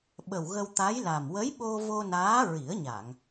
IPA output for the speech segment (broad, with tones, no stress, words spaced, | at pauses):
ɓə˨˩wɣə˧wt̪a˧˥jla˨˩m wə˧˥jɓo˧ vo˧naː˧˥ ɹi˨˩˦ə̯ɲa˨˩˨ŋ